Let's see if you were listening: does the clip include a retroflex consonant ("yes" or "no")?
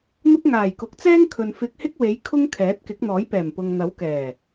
no